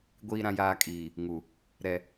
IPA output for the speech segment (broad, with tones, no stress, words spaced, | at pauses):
ɡʷiː˨ɾã˨jaː˨ kʼiː˨ | ŋu˨ | ɾɛ˨